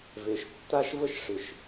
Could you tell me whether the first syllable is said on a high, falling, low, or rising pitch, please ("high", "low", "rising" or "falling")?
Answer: low